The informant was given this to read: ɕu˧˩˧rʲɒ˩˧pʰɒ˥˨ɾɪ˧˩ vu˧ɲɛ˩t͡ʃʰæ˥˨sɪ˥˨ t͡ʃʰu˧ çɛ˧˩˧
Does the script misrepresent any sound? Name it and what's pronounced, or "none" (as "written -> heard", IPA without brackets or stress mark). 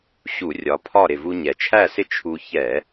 none